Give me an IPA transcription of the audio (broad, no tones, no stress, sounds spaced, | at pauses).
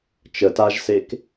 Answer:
t͡ʃ ə t a ʒ s e k